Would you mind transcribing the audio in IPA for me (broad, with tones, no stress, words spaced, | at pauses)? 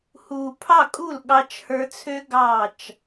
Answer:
hu˨pʰɑ˦˨kʼu˦˨l ɠɑ˧t͡ʃhə˞˧t͡sʰø˦ ɡɑ˦˨t͡ʃ